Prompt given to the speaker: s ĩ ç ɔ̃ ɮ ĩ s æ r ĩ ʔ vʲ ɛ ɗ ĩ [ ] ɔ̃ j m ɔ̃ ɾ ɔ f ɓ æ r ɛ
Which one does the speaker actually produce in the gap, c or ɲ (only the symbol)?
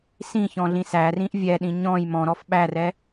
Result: ɲ